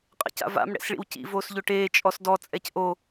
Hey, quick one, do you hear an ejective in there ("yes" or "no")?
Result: yes